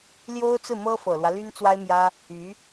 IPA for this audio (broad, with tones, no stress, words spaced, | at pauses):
ljo˥ʊ̯t͡sɹ̩˥˩mɤ˥ fɤ˨˩lwä˦ ly˥nt͡swa˥ɪ̯mjä˥ | y˧˥